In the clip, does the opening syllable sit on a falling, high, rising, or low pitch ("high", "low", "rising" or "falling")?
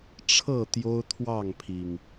falling